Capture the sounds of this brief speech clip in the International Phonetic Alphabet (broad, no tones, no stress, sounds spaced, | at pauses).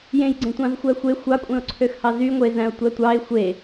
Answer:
j ẽ j ɡ͡ǀ ẽ tʷ ɑ̃ z xʷ æ xʷ e xʷ ɑ kʷʼ ẽ ʊ̯ ǀʰ ø x h ɑ z y ŋʷ e z æ̃ ʊ̯ tʷ æ tʷ ɑ ɪ̯ xʷ e